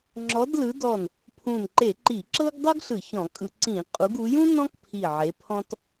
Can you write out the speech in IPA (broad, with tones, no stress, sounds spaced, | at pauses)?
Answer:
ŋ͡ǁ ɔ˨˦ d l ɯ˨˦ d ɔ˧˩ n | pʰ ũ˧˩ n ǃ e˧˩˧ ǃ i˧˩˧ ǁ ɤ˥ ɡ dˤ ɤ˥ ɡ ɬ ɯ˧˩˧ ç ɔ̃˧˩˧ kʼ ɯ˧˩˧ ǀ ĩ˧˩˧ qʼ u˨˦ ɡ u˨˦ j ũ˥ n ɔ̃˥ k pʰ i˧˩ ʕ e˨˦ pʰ ɔ̃˥ t